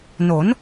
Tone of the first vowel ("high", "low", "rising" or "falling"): rising